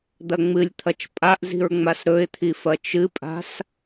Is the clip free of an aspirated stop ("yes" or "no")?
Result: no